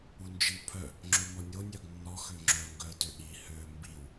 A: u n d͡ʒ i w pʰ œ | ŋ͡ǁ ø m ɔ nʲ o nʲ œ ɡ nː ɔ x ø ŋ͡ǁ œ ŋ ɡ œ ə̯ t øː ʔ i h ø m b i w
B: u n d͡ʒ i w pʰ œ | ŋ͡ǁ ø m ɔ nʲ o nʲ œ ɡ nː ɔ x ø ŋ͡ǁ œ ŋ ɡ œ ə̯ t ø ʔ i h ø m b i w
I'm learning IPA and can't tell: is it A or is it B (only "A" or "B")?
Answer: B